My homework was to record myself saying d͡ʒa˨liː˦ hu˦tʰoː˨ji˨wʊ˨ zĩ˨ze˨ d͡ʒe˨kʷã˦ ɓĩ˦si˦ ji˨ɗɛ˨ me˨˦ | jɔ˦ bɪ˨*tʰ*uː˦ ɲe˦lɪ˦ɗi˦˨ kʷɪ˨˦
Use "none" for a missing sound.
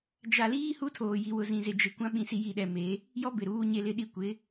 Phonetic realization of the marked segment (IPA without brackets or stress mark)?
ɾ